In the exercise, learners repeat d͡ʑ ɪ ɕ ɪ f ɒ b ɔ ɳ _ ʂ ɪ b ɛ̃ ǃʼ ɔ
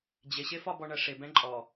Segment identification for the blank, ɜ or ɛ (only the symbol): ɜ